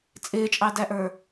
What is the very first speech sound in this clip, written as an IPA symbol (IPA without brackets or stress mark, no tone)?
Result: t͡sʼ